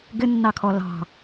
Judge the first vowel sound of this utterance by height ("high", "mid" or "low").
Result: high